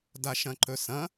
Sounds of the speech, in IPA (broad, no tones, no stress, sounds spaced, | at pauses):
d a ʃ ɐ̃ ǃ ɵ s ɐ̃